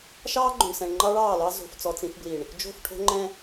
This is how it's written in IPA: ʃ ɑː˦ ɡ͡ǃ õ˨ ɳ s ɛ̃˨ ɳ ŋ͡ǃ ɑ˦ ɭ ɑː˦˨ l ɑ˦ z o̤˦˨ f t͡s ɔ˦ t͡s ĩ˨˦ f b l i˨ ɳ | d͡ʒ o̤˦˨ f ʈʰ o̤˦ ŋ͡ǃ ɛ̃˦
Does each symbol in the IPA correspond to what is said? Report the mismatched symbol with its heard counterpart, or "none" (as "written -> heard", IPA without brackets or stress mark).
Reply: none